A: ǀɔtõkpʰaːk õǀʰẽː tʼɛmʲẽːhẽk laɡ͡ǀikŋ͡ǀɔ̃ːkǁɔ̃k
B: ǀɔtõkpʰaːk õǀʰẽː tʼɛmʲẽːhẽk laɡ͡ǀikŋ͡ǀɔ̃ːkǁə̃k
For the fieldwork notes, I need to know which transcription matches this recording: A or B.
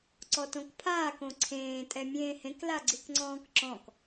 A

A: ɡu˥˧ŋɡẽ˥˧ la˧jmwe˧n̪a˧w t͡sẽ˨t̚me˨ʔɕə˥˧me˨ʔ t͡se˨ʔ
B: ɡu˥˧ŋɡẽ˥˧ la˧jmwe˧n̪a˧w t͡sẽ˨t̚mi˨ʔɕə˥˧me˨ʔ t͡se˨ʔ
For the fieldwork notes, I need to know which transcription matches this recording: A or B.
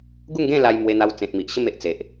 B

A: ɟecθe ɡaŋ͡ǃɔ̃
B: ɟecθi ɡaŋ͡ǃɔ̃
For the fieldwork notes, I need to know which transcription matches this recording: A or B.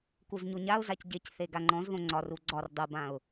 A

